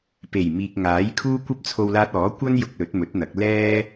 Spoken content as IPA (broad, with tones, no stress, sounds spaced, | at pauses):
p e˨˩ j m iː˨ k̚ ŋ aː˨˥ j kʰ uː˥ kʷ ɐ˥ p̚ t͡sʰ o˧ w l aː˧ t̚ ɔː˨˥ kʷ ɐ˥ n j ʊ˧ k̚ l ɵ˨˥ t̚ m ɵ˨˥ t̚ n̪ ɐ˨˥ k̚ l ɛː˥